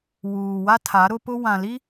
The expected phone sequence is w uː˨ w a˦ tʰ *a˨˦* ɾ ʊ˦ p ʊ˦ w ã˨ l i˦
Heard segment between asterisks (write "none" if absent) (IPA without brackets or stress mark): a˨˦